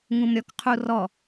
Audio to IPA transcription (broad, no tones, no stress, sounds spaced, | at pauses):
ŋ ũ m ɾʲ ɔ k qʰ u r ɔ